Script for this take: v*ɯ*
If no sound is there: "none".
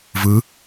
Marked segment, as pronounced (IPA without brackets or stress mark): ɯ